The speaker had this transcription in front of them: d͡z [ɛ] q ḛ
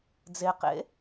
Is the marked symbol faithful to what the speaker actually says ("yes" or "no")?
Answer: no